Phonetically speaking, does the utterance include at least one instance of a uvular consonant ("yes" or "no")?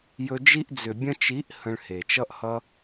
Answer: no